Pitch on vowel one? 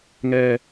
low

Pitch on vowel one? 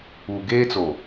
low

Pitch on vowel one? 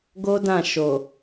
high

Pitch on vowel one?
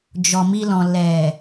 low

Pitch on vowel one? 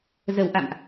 low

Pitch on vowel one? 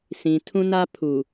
low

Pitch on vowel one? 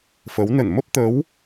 rising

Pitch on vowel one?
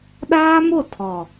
high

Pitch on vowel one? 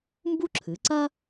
high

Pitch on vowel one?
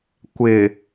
low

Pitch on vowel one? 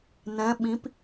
rising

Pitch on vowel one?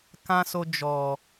high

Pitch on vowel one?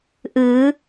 rising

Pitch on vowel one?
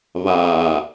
low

